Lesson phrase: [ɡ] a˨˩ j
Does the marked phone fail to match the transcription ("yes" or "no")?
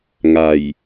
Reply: yes